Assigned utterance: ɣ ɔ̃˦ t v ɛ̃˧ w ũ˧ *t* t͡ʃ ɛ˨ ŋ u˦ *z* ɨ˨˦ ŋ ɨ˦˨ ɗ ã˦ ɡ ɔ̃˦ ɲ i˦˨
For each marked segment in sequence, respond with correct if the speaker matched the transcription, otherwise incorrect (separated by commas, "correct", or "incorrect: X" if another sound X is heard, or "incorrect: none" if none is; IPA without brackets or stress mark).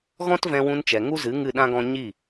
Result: incorrect: n, correct